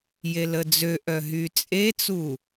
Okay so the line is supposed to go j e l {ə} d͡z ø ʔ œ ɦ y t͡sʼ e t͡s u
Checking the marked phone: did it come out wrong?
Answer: no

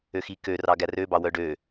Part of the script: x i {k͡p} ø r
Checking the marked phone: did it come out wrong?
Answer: yes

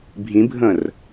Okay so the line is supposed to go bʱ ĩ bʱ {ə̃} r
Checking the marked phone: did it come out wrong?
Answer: no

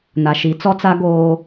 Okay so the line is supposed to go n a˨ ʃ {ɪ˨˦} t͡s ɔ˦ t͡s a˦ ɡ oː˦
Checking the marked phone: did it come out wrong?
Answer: yes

